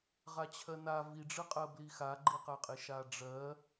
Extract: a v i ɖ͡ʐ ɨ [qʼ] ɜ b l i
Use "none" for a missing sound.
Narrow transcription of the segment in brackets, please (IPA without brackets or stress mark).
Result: qʼ